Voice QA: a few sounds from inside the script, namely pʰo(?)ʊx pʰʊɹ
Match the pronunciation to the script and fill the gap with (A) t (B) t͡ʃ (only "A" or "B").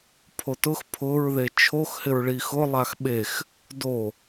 A